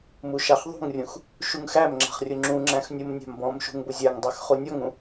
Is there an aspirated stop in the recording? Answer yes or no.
no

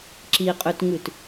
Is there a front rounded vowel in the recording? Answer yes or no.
yes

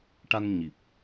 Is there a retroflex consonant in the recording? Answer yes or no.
yes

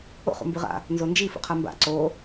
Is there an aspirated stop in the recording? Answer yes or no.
yes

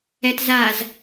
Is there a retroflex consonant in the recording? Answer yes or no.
no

